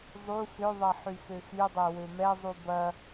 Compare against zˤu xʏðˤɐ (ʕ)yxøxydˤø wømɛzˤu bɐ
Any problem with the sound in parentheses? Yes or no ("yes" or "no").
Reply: yes